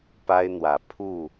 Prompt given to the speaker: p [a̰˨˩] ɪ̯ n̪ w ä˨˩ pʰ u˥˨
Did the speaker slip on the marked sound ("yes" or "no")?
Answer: yes